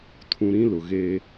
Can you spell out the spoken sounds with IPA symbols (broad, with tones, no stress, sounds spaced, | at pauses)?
tʰ ũ˨ ɾ ĩ˦ l ʊ˨ ɣ eː˦